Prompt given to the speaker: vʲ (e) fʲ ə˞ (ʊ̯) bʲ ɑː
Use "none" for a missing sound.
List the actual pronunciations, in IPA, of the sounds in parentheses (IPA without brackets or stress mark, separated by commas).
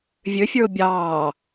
ø, ʊ̯